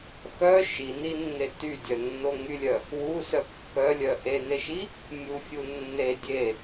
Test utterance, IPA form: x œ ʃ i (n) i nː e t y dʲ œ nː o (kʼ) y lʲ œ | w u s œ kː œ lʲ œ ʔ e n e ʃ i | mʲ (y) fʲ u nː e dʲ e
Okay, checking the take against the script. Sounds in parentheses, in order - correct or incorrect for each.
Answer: correct, incorrect: ŋ, incorrect: u

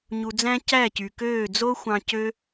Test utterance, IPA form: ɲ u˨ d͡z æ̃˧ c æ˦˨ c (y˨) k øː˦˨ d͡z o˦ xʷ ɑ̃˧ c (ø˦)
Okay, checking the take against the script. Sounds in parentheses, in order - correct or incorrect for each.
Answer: correct, correct

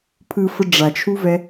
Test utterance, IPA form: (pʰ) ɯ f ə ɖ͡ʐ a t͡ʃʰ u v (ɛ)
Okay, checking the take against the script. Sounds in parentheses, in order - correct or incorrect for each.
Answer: correct, correct

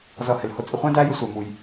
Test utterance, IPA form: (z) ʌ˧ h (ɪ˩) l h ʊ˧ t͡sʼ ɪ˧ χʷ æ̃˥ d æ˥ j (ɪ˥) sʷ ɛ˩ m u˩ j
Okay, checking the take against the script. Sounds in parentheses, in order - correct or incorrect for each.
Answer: correct, correct, incorrect: ɪ˧

